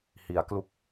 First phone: h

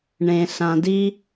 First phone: ɳ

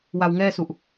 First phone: w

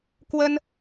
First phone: k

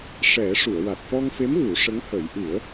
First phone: ʂ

